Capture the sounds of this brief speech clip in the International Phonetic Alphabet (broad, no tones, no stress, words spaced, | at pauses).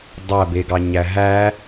dˤæbe ɡɑɲæɦæ